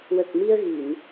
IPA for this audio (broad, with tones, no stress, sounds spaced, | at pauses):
w ə˨˩ k̚ m i˧ ə̯ ɣ i˨˩˨ n